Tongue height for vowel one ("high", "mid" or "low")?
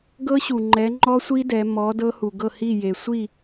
mid